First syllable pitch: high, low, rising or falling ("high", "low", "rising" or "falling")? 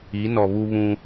rising